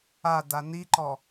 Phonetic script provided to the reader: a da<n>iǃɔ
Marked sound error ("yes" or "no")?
no